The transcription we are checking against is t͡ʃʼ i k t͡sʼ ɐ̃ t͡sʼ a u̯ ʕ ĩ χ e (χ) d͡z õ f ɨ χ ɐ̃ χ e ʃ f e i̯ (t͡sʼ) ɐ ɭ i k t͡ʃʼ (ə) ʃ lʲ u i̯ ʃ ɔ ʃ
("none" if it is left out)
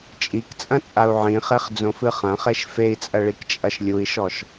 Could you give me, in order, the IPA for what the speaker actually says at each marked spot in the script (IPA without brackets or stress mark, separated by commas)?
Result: χ, t͡sʼ, ɐ